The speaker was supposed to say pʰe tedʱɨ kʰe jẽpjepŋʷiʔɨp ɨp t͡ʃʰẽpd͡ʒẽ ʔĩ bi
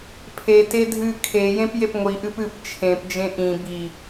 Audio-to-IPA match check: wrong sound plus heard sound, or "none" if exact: none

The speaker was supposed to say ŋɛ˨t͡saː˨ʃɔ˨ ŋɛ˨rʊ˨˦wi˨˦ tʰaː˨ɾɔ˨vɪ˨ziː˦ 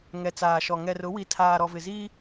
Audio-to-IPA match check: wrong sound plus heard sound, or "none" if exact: none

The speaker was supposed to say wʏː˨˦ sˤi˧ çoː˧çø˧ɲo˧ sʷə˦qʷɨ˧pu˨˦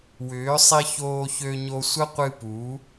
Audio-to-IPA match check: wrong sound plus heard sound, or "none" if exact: none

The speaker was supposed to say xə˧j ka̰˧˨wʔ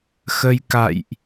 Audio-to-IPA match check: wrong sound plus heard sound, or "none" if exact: w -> j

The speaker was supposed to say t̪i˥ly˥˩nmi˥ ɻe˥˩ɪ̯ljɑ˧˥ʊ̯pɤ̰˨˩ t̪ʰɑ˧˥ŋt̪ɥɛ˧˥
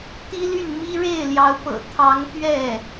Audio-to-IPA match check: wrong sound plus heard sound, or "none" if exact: ɛ˧˥ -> ɛ˥˩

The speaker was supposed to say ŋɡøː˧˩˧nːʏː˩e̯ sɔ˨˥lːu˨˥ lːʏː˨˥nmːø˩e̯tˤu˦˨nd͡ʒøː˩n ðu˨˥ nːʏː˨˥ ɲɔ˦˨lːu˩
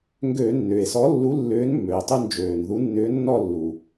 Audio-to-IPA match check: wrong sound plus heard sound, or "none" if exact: ɲ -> nː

